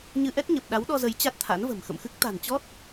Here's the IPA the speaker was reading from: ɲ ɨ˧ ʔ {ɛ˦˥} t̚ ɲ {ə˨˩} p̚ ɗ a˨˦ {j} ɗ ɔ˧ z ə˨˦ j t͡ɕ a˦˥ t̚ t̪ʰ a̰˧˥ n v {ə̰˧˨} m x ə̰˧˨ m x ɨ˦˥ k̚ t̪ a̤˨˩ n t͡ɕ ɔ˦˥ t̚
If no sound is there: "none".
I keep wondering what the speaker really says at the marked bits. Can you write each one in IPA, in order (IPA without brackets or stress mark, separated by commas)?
ɛ˦˥, ə˨˩, w, ə̤˨˩